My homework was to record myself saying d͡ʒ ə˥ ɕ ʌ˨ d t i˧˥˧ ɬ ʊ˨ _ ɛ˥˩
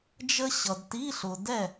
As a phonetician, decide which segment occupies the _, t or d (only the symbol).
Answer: d